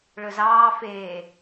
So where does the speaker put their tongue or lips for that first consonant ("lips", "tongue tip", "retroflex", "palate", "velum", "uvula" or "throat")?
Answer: retroflex